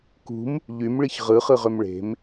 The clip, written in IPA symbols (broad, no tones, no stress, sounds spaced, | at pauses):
k ṳ m | ʎ y m ɭ i ç ʁ ɯ χ ɯ ʁ ø m ɭ e̤ m